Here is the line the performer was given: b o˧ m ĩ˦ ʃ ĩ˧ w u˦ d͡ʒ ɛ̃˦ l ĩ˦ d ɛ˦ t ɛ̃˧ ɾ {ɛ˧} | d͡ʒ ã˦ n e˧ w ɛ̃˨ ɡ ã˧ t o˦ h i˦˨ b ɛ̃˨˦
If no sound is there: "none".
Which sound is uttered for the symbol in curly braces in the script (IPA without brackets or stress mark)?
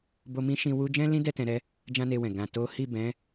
ɛ˦